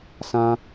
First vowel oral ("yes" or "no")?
no